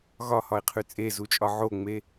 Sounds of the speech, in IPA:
ɣ ɒ h ɒ ɪ̯ qʰ ʉ t͡sʼ e z u t͡ʃʼ ɒ ʕ o ŋ͡m e

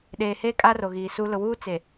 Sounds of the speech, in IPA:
ɗ eː˨ h eː˦ kʼ a˦ r o˨ ɣ iː˨ s u˦ l ʊ˨ w uː˦ t͡s e˨

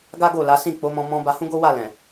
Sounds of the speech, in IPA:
ɡ a˦ ɡ o˦˨ l a˨˦ s ĩ˦˨ k͡p o˨˦ m ɔ̃˧ m ɔ̃˧ b a˧ h ũ˦ ɡ o˦ w a˦˨ l ɛ̃˨

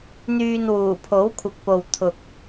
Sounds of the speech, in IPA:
n̪ yː˨ n w uː˨˩ pʰ o˨˥ w kʷʰ ɪ˨ k̚ p o˨ w t̪ʰ ʊ˨ k̚

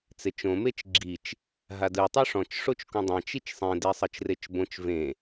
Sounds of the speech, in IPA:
t͡s e t͡ʃ õ m e t͡ʃ ɡ͡ǁ i t͡ʃ | ɦ a d ɯ tˤ u ʂ ɔ̃ t͡ʃ ʂ o t͡ʃ k ũ dˤ ɛ̃ t͡ʃ i t͡ʃ sˤ ẽ d e sˤ ɤ t͡ʃ r e t͡ʃ b õ t͡ʃ v ẽ

